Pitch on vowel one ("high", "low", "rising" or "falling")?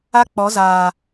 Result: high